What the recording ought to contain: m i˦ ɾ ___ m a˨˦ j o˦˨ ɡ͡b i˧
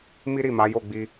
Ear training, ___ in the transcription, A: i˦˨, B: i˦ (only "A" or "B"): A